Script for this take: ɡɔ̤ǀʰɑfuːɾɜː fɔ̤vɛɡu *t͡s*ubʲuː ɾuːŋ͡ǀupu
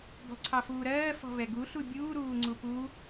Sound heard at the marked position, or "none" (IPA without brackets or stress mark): ɬ